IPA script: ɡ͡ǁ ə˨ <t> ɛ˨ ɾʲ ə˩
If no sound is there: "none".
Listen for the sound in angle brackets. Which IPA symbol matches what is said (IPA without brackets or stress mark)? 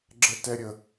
t